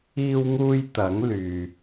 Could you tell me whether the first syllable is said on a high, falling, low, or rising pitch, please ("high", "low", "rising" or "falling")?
high